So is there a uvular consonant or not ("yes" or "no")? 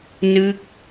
no